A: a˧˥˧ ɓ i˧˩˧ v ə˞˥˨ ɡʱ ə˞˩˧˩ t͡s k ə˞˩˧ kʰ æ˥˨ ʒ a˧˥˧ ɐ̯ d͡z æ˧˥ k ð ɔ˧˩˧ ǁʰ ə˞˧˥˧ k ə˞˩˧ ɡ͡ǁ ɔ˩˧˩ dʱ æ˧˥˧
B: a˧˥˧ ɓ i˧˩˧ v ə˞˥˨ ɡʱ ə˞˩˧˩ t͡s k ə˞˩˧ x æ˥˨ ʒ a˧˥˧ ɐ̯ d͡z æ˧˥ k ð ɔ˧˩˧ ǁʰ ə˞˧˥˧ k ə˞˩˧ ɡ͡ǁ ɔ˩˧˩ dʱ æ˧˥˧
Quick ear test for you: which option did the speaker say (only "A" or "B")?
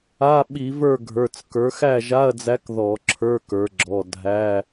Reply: B